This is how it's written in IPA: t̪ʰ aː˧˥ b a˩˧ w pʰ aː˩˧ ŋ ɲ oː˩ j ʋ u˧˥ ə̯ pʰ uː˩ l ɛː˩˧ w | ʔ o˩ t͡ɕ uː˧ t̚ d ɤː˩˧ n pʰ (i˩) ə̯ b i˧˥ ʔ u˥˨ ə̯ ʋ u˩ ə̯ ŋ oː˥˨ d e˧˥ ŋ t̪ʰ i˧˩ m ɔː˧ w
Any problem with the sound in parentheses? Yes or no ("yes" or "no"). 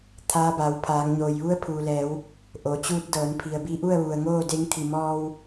no